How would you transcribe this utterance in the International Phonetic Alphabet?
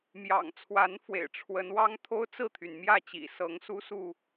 mjɑ̰˨˩ŋ t͡sʰwa˨˦nfwḛ˨˩ɪ̯ ʈ͡ʂʰwə˨˦nwɑ˦ŋ t̪ʰo˦ʊ̯t͡sɹ̩˥˨t̪ʰy˩nmjä˥˨ t͡ɕḭ˨˩sɤ˨˦ŋ su˦su˥˨

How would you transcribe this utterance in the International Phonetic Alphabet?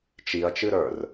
t͡ʃiɐ̯t͡ʃɨɾə˞r

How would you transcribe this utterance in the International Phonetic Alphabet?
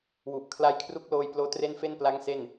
wu˨˩ʔ kʰla˦˥j kʰru˦˥k̚loː˧jploː˦˥ tre˥˩nfe˥˩n pla˦˥ŋ se˥˩n

